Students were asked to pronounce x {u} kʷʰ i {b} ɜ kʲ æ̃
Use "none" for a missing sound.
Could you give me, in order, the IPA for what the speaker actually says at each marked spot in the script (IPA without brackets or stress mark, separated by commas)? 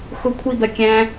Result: ʊ, b